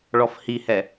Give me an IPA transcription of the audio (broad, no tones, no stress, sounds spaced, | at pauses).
ɭ ɔ f h i h ɛ